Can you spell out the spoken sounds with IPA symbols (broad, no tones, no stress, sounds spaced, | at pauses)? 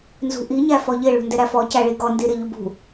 n z ṳ ʔ i ɲ æ f ɔ ʎ ɪ ɭ ṳ n d ɪ ɾ æ f ɔ c æ ɭ i ɡ ɔ n d i ɾ ɪ ʎ u b ṳ